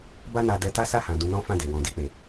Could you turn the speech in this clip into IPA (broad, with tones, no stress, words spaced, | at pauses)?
ba˦na˧ dɛ˧ta˦sa˦˨hã˨ dũ˧nɔ̃˦fã˦˨de˨ wɔ̃˨di˧k͡pe˨